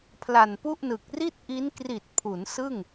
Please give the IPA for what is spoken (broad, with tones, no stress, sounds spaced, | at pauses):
pʰ l a˨˩ n p u˥˩ ʔ n ɯ˨˩ k̚ r i˥˩ t̚ ʔ i˦˥ n k r i˨˩ t̚ pʰ u˩˦ n s ɯ˥˩ ŋ